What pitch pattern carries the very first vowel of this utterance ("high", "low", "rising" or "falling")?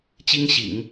high